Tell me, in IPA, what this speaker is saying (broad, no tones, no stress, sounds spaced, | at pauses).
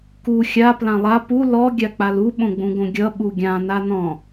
k u xʲ a p l ã lˠ a p u l ɔ ɡʲ a k͡p a l u ɓ õ ɡ͡b ũ ɡ õ ɡʲ ʌ ɓ u ɡʲ ã n a n ɔ̃